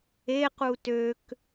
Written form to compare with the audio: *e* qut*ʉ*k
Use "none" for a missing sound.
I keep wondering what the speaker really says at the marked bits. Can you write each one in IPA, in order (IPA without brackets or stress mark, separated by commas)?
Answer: e, ø